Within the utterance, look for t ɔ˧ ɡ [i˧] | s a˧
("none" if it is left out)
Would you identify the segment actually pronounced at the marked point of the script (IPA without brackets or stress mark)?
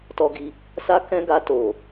i˧